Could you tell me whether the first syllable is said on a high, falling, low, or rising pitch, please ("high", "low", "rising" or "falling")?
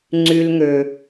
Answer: high